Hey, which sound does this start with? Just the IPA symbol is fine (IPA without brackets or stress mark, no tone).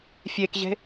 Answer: fʲ